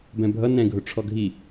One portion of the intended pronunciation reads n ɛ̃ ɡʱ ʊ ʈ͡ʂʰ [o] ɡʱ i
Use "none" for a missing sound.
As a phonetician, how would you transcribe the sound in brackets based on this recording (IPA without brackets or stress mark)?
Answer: ɔ